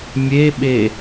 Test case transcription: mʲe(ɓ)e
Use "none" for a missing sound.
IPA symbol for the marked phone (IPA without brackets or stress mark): ɓ